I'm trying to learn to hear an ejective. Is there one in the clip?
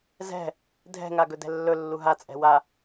yes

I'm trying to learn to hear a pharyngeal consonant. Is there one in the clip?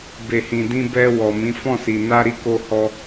no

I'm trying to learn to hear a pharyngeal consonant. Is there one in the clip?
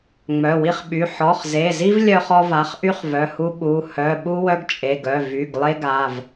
yes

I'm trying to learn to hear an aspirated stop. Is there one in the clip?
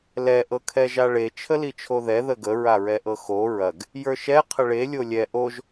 yes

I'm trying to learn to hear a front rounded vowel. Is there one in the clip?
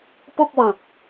no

